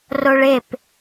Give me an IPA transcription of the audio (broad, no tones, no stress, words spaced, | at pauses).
roɭep